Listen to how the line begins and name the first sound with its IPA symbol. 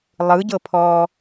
lˠ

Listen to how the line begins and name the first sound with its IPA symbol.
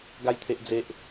ɡ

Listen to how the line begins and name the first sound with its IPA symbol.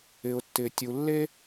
ɪ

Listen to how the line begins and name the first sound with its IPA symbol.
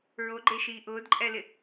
ɹ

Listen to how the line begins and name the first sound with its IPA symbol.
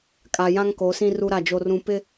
kʼ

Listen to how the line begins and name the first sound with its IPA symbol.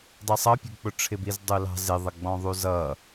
dˤ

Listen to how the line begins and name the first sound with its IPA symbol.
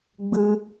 ɡ͡b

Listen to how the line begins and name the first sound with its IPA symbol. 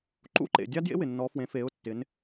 ǃ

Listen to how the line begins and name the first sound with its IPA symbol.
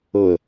ɤ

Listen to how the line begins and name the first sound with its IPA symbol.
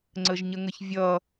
ŋ͡ǀ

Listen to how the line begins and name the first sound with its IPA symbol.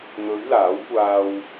n̪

